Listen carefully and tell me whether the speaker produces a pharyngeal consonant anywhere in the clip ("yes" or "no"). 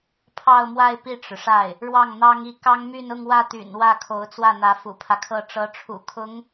no